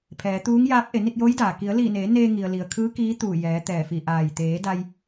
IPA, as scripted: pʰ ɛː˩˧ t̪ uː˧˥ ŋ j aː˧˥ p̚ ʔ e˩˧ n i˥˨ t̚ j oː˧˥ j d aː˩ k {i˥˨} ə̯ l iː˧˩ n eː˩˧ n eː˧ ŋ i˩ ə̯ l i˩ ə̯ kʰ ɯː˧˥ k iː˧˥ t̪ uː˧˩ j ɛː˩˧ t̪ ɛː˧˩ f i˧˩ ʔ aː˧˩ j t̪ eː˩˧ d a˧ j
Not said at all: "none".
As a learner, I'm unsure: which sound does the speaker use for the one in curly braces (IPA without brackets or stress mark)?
i˩˧